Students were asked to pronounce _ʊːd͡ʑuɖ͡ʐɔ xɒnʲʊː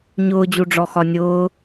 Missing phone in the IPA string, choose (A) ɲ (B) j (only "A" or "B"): A